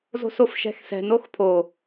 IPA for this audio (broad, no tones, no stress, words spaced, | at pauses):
zo̤sofʃɛ̤xsɛ̤n oxpʰo